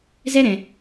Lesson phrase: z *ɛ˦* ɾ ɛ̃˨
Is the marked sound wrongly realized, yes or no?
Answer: no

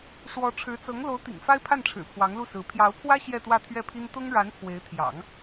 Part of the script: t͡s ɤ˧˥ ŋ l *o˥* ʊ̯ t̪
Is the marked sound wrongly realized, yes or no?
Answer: yes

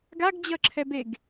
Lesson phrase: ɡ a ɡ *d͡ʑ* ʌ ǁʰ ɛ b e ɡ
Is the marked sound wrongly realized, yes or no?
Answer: no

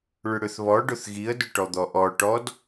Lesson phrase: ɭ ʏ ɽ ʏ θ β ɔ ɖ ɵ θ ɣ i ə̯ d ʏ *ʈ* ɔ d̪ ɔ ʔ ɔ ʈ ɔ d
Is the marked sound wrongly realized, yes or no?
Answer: no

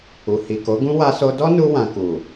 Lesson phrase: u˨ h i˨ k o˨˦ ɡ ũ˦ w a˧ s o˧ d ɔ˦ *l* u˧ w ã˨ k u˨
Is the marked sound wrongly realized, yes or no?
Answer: yes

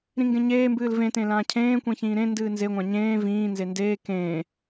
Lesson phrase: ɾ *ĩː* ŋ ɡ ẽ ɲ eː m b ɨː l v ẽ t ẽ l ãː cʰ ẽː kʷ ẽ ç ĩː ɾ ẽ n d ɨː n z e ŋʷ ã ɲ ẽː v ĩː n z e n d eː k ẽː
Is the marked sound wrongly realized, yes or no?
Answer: yes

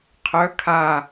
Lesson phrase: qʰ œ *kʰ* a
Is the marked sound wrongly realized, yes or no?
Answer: no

